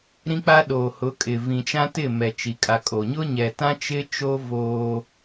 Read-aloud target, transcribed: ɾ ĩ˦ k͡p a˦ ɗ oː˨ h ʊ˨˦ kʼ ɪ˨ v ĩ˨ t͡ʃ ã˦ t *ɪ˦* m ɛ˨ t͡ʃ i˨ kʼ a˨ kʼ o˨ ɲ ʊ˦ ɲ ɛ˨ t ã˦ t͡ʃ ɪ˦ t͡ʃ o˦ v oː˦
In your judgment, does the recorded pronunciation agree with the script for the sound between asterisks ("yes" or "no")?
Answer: no